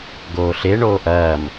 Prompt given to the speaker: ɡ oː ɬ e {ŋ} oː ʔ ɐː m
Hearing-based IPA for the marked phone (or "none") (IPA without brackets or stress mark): ɳ